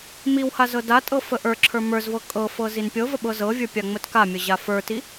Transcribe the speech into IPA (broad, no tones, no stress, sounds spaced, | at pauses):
m i w h a z ɤ d a tʼ ɤ f ə ʔ ə˞ ǁʰ ə˞ m ə˞ z v ɤ kʼ ɤ f ɤ z i n pʲ ɤ v ə ɓ ɤ z ɤ vʲ ə˞ pʲ a ŋ͡m ə t k a mʲ ə ʑ a f ə˞ t i